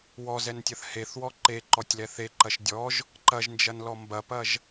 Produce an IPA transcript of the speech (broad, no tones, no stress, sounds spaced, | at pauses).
w ɔ z ɛ n tʲ ɐ θ h e θ w ɔ ǃ e ǃ ɔ tʲ l ɛ θ e ǃ ɐ ʃ dʲ ɔ ʒ | ǃ ɐ ʒ n d͡ʒ ɐ n l ɔ m b ɐ p ɐ ʒ